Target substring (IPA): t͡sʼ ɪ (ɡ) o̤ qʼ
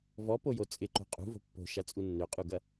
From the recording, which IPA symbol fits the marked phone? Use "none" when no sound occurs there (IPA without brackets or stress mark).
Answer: ǃ